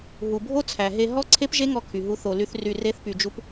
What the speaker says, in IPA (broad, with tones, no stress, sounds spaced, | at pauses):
ɦ u˨ bʱ o˦ t͡sʰ æ˨ ɦ e˧ ɦ ɔ˦ ǀʰ e˦ p ʒ e˦ ŋ ɔ˧ kʰ y˨ ɦ u˦ θ o˧ l y˦ θ r y˧ r e˦ θ p y˧ d͡ʒ u˦ p